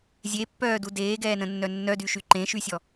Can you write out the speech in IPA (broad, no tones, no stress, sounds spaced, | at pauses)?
zʲ e pː œː d u d eː ɡ ɛː n ə̃ nː œ nː œ d y ʃ y ǃ ẽ ʃ y sʲ ɔ